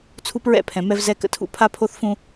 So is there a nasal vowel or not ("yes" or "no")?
yes